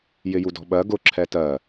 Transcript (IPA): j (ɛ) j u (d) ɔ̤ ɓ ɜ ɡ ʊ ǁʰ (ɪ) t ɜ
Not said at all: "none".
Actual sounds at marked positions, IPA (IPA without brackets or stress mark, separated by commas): ɪ, d, ɛ